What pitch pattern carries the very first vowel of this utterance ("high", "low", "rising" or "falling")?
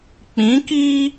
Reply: rising